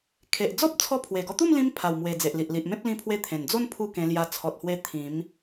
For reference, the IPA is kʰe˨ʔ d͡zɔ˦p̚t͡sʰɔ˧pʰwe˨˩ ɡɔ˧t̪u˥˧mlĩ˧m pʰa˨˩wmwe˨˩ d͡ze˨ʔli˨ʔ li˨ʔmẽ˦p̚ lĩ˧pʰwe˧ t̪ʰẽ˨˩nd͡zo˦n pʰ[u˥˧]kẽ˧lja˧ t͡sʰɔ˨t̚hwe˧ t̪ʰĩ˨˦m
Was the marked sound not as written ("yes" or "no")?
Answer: no